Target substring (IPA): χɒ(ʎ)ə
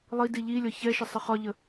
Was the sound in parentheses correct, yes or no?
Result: yes